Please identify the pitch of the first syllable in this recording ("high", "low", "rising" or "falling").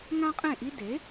high